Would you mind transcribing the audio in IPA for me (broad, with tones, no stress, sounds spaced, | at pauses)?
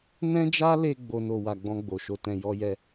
n ɛ̃˦ d͡ʒ a˦ l e˧ ɡ͡b o˦ n o˧ w a˨ ɡ͡b ɔ̃˧ ɡ͡b o˨ ʃ o˧ t ɛ̃˧ j ɔ˦ j ɛ˦